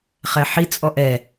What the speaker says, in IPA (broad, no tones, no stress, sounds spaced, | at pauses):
χ ɛ ħ i t͡sʼ ɔ ʔ ɛ